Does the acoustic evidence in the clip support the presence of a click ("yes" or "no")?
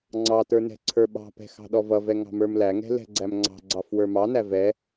yes